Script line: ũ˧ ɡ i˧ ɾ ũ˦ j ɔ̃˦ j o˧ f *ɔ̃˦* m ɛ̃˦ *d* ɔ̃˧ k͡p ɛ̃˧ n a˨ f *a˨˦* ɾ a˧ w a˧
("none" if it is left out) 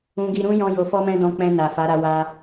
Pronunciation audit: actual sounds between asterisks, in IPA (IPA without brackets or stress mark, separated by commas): ɔ˦, d, a˨˦